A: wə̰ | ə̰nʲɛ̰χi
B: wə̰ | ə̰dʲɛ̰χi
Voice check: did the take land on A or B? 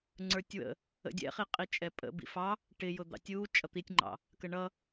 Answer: B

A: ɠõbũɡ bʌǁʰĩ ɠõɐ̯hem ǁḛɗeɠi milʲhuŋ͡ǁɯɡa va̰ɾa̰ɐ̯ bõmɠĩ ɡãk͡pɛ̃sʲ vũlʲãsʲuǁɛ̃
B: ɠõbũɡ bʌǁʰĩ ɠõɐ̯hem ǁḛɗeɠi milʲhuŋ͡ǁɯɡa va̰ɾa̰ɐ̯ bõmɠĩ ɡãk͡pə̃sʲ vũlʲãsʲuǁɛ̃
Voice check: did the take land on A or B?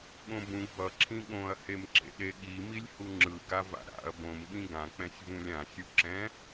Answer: A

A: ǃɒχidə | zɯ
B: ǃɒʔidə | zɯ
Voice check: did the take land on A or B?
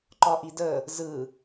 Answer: B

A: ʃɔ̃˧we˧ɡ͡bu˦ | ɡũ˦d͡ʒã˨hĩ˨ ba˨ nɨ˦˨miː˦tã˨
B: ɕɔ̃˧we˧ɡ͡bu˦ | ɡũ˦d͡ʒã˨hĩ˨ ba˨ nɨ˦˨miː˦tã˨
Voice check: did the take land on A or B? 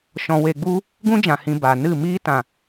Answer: A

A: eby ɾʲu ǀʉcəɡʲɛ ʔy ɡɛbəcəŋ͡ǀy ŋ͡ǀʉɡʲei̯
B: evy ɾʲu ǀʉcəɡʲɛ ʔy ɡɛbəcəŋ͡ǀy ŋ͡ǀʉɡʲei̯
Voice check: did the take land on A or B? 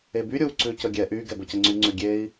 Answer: A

